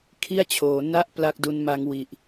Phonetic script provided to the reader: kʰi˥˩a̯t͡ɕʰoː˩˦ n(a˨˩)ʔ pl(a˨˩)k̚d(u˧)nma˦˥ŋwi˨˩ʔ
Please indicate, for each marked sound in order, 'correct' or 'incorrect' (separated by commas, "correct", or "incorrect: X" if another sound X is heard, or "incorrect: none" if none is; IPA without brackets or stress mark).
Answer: incorrect: a˥˩, incorrect: a˥˩, incorrect: u˦˥